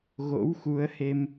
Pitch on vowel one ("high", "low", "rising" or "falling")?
rising